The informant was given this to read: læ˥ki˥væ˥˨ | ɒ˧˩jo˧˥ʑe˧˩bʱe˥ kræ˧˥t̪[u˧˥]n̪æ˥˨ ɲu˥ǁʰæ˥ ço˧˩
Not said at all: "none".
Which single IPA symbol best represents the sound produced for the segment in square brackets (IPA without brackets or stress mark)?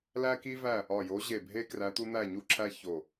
u˥